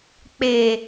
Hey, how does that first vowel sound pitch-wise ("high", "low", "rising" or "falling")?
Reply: low